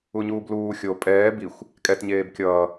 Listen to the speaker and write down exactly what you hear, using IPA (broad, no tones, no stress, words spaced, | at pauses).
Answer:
uɲuːbluː xʲo pʼɛː bixʷ | kʼɛtɲeːb kʲʌː